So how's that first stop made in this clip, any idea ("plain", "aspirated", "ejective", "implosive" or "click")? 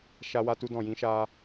plain